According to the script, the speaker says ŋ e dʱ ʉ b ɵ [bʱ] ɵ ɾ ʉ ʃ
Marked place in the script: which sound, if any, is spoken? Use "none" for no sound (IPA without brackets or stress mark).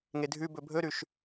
bʱ